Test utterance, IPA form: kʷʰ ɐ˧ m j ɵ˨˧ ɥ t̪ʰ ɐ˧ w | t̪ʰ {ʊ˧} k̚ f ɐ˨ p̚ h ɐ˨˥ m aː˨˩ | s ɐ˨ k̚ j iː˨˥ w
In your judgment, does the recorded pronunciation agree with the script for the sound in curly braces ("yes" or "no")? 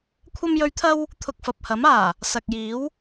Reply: yes